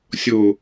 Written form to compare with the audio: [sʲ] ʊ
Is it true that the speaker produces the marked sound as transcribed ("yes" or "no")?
yes